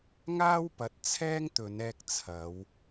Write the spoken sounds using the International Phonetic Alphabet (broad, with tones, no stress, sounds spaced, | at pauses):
ŋ aː˥ w p ɐ˨˥ t̚ t͡sʰ ɛː˥ ŋ t̪ ɵ˨˧ n ɛː˧ k̚ t͡sʰ ɐ˨˧ w